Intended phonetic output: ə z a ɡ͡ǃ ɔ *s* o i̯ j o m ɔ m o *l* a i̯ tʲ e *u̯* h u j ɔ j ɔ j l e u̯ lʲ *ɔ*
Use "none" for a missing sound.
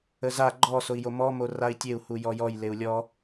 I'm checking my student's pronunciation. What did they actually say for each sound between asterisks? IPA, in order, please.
s, r, u̯, ɔ

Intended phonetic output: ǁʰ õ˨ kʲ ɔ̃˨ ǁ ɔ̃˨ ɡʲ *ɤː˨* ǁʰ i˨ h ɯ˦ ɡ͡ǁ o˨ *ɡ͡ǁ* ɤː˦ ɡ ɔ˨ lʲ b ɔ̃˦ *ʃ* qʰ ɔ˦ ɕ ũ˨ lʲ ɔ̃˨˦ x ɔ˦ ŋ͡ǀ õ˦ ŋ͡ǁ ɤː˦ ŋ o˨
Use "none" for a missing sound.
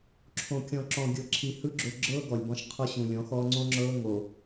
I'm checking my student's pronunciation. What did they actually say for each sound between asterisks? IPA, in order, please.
ɤ˨, ɡ͡ǁ, ʃ

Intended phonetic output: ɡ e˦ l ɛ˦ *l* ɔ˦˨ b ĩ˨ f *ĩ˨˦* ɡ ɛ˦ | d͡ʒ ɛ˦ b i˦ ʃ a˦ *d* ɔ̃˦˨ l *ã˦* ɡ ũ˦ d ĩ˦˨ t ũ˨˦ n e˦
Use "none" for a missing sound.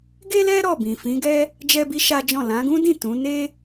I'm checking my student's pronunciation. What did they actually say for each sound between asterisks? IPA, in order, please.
ɾ, ĩ˨˦, d͡ʒ, ã˨˦

